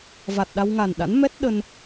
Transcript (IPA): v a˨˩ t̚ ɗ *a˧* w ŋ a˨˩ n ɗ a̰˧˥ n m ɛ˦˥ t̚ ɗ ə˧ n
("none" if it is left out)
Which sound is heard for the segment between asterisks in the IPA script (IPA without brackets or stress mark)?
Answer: a˧